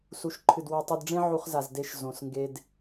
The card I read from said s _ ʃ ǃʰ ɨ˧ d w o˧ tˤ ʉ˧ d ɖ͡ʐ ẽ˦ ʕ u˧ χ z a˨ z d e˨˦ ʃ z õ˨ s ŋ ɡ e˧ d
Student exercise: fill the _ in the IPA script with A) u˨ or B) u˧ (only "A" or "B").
B